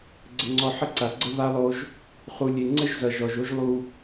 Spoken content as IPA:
ɡ͡ǀə˨ŋ͡ǀɔ˨ ħə˦ǀa˨ɡ͡ǀə˦ βa˦lˠo˦ʒ | χu˨lʲe˨ ŋ͡ǀə˦ʒ zʌ˨ʒɔ˨ʒo˦ʒ lˠu˦

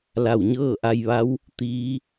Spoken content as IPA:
la˧˩wɲɤː˥˨ʔa˧jʋa˧˥w | t̪iː˧˥

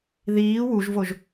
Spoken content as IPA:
ðiː wuʒvoʒ

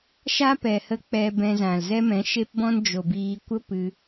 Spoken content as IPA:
ʃa˦pɛ˨hə˧ k͡pɛ˧ bɛ̃˧zã˨l zɛ˦mɛ̃˨˦ʃe˦pbɔ̃˦n d͡ʒo˨biː˧ kʷə˦ pɨ˧

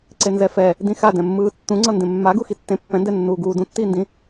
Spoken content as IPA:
ǀenzɛfɛ | dĩxadɛ̃mːɯː tːũŋ͡ǀʌ ndẽmːaɡu xitːẽ pːɛ̃ndɛnːuː ɡuː dũtːiːndĩ

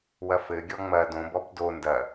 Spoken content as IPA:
wɐfɘɡʲɔ ŋ͡mɐ dõbɔb do ndɐ

